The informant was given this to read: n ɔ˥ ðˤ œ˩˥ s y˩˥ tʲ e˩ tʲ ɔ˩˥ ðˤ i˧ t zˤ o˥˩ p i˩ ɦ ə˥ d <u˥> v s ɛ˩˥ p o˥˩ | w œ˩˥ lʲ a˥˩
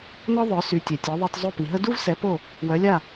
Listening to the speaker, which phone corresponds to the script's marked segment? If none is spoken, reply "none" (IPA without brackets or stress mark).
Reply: u˥